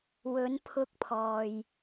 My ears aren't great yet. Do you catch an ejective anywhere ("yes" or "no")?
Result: no